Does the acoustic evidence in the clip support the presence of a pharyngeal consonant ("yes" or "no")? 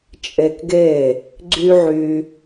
yes